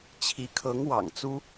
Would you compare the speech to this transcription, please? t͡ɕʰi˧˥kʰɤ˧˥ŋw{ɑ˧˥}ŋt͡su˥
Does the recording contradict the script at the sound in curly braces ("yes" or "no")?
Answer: yes